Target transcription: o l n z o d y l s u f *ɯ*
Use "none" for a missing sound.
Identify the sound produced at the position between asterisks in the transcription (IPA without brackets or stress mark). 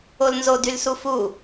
u